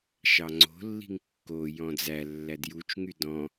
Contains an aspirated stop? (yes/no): no